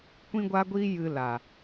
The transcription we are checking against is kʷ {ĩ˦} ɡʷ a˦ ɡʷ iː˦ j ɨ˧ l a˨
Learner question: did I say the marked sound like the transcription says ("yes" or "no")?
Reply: yes